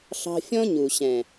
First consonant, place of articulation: alveolar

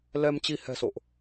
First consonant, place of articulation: alveolar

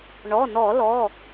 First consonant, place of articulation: retroflex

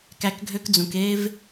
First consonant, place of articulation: velar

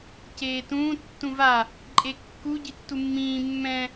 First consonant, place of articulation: palatal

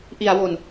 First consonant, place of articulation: glottal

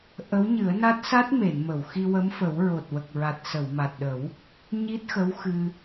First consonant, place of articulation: glottal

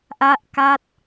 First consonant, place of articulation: glottal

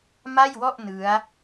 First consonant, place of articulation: labial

